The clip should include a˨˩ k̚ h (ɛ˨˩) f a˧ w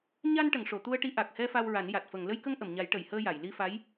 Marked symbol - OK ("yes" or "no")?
no